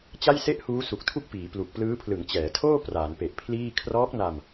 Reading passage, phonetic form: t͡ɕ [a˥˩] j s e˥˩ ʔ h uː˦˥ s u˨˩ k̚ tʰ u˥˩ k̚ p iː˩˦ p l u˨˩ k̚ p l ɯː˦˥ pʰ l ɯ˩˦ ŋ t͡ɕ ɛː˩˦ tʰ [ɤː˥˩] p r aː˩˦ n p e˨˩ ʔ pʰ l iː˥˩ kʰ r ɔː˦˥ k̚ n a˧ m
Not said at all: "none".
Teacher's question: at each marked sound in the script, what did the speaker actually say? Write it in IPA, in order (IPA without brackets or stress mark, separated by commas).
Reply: a˥˩, oː˥˩